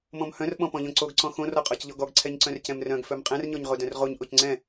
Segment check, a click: present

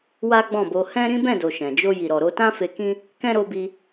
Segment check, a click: absent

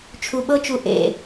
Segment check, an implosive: present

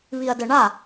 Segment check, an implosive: absent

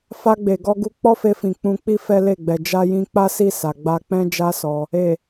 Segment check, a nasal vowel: present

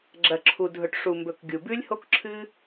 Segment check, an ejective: absent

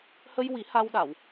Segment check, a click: absent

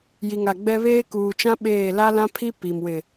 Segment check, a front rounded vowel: absent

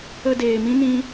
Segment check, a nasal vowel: present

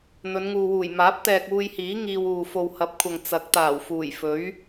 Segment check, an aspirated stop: present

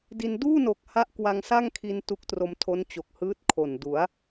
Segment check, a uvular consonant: absent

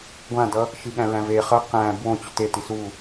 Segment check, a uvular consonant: present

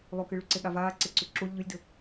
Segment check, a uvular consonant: absent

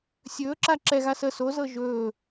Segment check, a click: present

